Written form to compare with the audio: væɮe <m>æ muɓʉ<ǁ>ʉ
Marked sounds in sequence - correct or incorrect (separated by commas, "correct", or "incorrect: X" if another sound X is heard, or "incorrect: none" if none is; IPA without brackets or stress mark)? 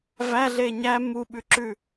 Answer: incorrect: ɲ, correct